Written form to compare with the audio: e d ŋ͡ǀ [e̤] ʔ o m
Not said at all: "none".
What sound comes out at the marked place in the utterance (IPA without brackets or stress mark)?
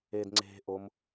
e̤